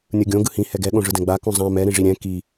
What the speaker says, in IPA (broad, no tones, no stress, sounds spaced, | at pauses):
nʲ ɯ ɡʲ õ ɡ ɯ h ĩ h ɛ ɡ ɛ ɠ õ ʐ ɯ d ɛ̃ ɡ͡b a k ũ zˤ ã m ɛ ɾ ĩ ʐ i ɾʲ ɛ̃ k i